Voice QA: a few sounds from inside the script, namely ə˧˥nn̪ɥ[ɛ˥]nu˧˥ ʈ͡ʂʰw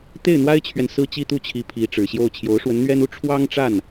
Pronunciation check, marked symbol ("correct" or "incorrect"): correct